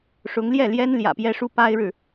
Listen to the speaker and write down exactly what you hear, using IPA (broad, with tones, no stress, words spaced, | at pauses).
ʂʊ˧˥ŋ ljɛ˥˩ljɛ˥n ljä̰˨˩pjɛ˥ʂu˥ pa˥ɪ̯ɻɻ̩˨